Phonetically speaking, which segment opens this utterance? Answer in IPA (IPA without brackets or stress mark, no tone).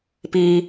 p